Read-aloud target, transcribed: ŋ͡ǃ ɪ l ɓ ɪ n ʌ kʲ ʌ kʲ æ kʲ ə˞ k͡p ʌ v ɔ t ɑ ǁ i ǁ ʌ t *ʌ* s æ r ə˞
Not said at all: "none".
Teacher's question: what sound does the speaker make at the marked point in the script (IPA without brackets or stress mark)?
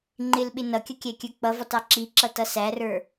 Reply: ʌ